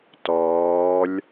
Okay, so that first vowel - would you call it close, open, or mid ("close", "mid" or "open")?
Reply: mid